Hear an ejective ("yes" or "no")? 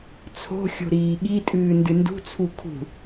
yes